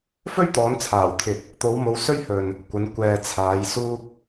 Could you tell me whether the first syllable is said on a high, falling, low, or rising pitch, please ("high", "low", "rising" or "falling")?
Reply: high